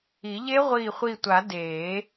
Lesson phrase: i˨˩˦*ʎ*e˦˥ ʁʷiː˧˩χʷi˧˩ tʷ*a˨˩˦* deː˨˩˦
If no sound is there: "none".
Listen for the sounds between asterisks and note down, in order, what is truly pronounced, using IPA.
ʎ, a˨˩˦

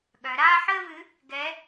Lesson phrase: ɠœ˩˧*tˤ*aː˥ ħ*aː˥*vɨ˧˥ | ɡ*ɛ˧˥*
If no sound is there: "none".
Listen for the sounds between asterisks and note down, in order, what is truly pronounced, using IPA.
ɾ, əː˥, ɛ˧˥

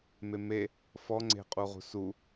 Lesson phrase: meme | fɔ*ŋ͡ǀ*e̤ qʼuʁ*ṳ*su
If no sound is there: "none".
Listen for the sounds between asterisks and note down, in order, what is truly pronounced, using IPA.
ŋ͡ǀ, ṳ

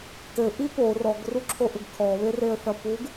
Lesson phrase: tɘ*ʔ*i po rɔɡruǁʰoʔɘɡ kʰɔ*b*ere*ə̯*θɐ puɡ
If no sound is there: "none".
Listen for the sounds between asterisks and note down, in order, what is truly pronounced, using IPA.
ʔ, β, ə̯

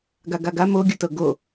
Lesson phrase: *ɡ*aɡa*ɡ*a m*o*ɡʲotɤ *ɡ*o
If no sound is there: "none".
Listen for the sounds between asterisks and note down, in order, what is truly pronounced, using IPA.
ɡ, ɡ, o, ɡ

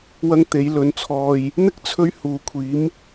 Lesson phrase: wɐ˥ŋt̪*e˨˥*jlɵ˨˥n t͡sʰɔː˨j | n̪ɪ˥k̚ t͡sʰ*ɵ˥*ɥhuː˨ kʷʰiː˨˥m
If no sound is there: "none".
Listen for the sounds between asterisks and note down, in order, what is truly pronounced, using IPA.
e˨˥, ɵ˥

